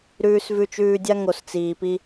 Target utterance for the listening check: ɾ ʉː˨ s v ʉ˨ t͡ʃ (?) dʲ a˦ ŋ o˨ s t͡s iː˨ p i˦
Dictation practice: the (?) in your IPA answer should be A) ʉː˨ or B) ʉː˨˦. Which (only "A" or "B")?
A